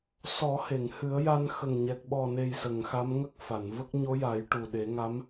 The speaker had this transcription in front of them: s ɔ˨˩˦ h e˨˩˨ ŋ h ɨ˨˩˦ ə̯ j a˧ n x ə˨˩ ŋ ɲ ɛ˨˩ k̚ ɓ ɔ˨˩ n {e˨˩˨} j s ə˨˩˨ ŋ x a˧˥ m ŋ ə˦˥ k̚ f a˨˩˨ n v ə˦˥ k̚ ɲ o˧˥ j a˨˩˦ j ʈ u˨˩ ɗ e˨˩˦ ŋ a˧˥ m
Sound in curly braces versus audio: incorrect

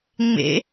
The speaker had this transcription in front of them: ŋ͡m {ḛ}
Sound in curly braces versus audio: correct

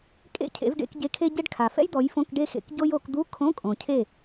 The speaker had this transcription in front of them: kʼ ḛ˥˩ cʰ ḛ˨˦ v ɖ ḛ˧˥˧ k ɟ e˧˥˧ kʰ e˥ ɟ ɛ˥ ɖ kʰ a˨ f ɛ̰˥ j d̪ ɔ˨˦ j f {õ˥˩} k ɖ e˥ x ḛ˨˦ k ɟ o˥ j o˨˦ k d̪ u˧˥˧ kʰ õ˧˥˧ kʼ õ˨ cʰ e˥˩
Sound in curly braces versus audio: incorrect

